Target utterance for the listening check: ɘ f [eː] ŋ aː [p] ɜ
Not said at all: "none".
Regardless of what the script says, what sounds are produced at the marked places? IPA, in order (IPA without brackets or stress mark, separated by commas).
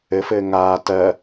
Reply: ɘː, t